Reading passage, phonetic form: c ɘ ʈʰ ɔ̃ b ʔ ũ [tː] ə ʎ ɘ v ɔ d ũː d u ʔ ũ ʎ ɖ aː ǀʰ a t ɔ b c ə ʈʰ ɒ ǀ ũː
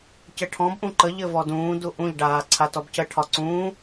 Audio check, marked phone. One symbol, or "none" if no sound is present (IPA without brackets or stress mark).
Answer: ǃ